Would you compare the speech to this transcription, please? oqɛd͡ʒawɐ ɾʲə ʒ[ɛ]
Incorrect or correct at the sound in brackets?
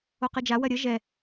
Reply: correct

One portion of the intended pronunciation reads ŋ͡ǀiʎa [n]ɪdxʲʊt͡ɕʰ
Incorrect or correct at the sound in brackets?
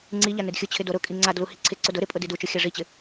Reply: correct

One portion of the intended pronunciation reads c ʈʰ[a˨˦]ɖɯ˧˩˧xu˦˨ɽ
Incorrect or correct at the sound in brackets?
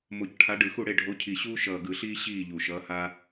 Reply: correct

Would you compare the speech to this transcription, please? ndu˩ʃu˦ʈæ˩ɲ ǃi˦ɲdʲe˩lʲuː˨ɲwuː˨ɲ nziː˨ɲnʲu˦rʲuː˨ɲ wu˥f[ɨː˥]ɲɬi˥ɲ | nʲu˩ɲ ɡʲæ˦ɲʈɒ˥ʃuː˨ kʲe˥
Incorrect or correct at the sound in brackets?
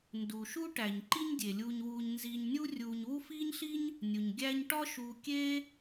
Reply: incorrect: iː˥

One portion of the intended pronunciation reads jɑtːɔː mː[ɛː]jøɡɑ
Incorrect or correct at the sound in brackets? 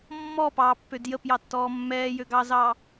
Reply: correct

